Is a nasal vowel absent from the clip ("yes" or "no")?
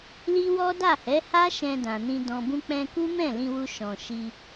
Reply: no